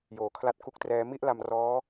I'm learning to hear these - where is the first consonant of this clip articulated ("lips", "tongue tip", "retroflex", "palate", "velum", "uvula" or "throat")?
palate